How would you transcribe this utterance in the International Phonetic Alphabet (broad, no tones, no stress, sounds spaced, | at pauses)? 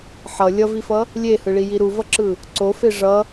ħ ʌ lʲ ʌ v i f ʌ | lʲ e h ɯ ɭ i j i ɾ u v ʌ ǁ ɯ | ǀ o f e ʐ ʌ